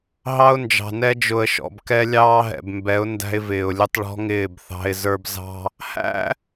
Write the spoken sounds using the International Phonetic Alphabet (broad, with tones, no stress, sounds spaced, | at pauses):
ɦ ɑ˦ ʊ̯ n d͡ʒ ɑ̤˨ n ɛ˦ d͡ʒ ʊ˨ ə̯ ʃ ɔ̰˨ b k ɛ˦ lʲ ɑː˦ ɦ ɛ̰˨ b m b ɛ˨˦ ʊ̯ n d æ̤˦ ɪ̯ v ɪː˨ ʊ̯ lʲ ʊ˦ tˤ ɭ ɔ̤˦ ŋ ɪː˦˨ b θ ɑ̤˦ ɪ̯ z ə˞˦ b z ɑ̤˦ | h æ̰˦